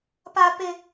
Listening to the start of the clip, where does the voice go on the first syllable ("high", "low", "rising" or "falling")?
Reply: high